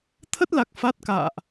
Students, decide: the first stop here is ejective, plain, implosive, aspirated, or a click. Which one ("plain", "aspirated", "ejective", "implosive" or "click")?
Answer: aspirated